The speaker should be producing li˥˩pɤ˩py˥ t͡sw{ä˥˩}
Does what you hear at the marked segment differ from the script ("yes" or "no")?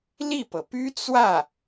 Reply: no